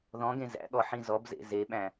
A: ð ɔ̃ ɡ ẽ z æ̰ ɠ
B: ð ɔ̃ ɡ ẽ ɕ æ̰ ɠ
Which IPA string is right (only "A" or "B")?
A